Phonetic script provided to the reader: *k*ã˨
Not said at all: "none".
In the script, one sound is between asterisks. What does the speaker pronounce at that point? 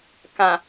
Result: k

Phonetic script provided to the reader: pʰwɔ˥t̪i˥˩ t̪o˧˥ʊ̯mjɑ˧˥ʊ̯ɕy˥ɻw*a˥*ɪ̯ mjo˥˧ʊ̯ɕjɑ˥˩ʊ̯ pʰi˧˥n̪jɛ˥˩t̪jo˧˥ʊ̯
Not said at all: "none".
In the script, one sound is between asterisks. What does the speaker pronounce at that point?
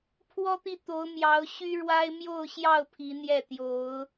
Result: a˥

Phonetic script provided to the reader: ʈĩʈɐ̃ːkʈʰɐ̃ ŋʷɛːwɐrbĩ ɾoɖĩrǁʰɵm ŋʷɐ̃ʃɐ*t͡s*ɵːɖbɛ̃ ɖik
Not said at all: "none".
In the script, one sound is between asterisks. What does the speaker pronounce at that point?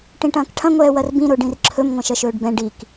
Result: ʃ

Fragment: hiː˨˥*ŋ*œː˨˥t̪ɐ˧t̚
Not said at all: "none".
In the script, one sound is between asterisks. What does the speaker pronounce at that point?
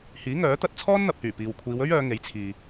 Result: ŋ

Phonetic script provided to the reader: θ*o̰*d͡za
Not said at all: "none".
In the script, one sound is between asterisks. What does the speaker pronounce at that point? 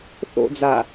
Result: o̰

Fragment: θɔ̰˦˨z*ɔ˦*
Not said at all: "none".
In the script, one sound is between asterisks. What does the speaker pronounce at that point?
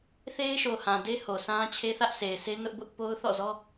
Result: ɔ˦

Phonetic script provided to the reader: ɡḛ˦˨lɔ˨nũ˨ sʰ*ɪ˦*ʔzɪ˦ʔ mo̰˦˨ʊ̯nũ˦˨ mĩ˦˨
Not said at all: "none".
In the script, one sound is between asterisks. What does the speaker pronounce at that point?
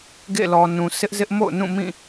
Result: ɪ˦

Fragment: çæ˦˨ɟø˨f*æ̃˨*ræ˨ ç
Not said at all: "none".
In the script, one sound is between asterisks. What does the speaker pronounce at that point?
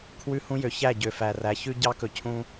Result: æ˨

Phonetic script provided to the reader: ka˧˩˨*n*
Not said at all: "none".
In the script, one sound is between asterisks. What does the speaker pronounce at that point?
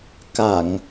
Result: ŋ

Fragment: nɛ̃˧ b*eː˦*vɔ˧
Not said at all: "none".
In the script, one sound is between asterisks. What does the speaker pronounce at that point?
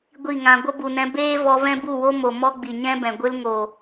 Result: eː˦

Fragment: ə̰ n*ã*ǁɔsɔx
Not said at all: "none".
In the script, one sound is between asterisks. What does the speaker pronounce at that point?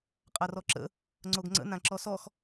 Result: ã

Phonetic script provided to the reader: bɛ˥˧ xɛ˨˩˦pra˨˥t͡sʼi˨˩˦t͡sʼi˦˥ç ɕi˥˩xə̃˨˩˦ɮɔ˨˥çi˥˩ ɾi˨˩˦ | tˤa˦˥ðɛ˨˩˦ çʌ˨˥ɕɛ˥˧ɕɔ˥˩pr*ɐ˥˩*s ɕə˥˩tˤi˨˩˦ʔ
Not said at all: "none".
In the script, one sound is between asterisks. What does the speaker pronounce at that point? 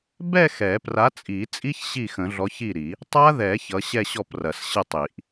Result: ɐ˨˩˦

